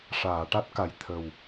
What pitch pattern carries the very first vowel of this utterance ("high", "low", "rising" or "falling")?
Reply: low